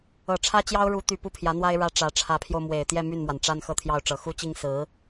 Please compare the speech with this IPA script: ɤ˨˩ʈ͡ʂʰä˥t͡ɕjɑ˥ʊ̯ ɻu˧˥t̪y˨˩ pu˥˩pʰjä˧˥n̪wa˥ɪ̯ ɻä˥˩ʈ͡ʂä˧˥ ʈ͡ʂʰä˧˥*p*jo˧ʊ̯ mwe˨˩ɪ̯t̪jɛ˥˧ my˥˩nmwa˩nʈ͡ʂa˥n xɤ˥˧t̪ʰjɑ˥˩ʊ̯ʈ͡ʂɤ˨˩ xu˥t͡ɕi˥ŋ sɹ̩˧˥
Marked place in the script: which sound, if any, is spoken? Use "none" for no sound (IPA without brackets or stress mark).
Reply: pʰ